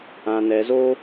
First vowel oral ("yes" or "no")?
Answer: no